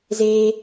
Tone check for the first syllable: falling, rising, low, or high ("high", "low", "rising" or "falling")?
high